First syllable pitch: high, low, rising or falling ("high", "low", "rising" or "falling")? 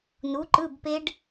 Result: rising